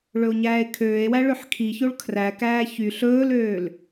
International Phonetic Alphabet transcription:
ɭ ɵ o̯ ɲ æː e̯ kʰ øː e̯ w æ ɭ ø ħ kʰ i ç o ɭ kʰ r æ k æː ç y ɬ ɵː l øː l

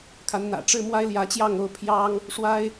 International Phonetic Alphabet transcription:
kʰ a˧˥ n n̪ ä̰˨˩ ʈ͡ʂ ɻ̩˥ m w a˥ ɪ̯ l j ä˧˥ t͡ɕ j ɑ˥˧ ŋ o˥˩ ʊ̯ pʰ j ɑ˥ ŋ | ʂ w a˥ ɪ̯

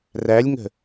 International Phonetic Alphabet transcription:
r æ lʲ ŋ ə̤

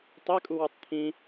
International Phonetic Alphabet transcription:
tˤ e kʼ u w u tˤ t̪ʰ ĩ

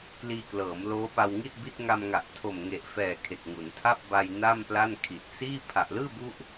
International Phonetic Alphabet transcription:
k l iː˧ k l ɤː˩˦ m l oː˦˥ p a˧ w ŋ i˥˩ t̚ b i˦˥ t̚ ŋ a˧ m ŋ a˨˩ ʔ tʰ o˨˩ m ŋ e˨˩ ʔ f ɛː˨˩ kʰ e˨˩ k̚ ŋ u˩˦ n tʰ a˥˩ p̚ b a˧ j n a˥˩ m p l a˥˩ n kʰ i˨˩ t̚ s iː˥˩ pʰ a˨˩ ʔ l ɯː˥˩ b u˦˥ ʔ

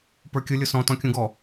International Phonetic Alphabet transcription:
p ə˞ kʲ ʊ lʲ ʊ s ɔ̃ t ɔ̃ kʲ ũ ɡ ɔ

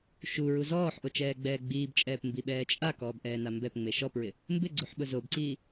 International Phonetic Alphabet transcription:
ʃ u ɹ u z ɔː ħ ʔ o t͡ʃ ɛː ɡ͡b ɛː ɡ͡b iː b t͡ʃʼ ɛː p m b i ɓ ɛː t͡ʃʼ a k ɔː b ʔ ɛː n a m b ɛ p ŋ͡m e ʃ ɔ p ɹ ɪ | m b ɪ ɡ͡ǀ u ħ ɓ ʊ z o b ǀ iː

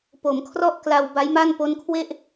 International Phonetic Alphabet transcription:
p o˩˦ m kʰ r ɔ˥˩ ʔ k l a˧ w b a˦˥ j m a˥˩ n p o˦˥ n kʰ w e˥˩ ʔ

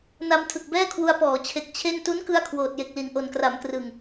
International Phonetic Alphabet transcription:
n a˧ m tʰ ɯ˨˩ k̚ b ɛː˥˩ kʰ w u˧ a̯ p ɔː˩˦ t͡ɕʰ e˨˩ k̚ t͡ɕʰ e˥˩ n t u˦˥ n k ɯ˧ a̯ kʰ w oː˨˩ t̚ j e˨˩ k̚ l i˨˩ n ʔ o˨˩ n k r a˩˦ m k r ɯ˨˩ ŋ

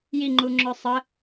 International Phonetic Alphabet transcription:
j i ŋ͡ǃ u ŋ͡ǁ œ sˤ ə

